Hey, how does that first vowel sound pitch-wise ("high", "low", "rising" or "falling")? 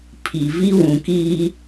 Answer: low